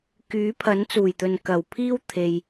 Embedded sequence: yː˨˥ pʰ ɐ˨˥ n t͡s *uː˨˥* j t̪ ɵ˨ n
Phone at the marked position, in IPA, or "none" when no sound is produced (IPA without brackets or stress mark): uː˨˩